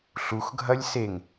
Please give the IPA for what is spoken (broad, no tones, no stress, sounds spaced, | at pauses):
ɬ u x ɡʱ ɐ lʲ s e ŋ